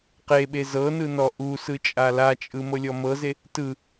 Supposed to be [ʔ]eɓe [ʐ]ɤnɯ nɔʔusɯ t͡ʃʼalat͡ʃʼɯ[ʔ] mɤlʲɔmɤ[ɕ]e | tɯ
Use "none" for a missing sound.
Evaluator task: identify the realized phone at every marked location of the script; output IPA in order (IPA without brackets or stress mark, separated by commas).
q, z, none, z